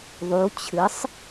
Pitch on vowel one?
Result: rising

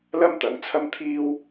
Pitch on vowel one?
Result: high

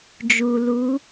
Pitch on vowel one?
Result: low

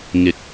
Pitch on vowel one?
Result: rising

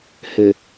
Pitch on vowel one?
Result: low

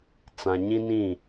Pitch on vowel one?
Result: low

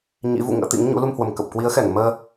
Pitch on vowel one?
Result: rising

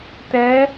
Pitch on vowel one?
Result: rising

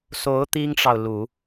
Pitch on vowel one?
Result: rising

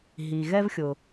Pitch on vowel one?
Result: low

